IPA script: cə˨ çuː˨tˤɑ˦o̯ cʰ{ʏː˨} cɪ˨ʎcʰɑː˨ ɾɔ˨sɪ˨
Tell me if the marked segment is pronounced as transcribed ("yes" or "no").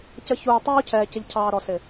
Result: no